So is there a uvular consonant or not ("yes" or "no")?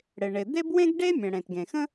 no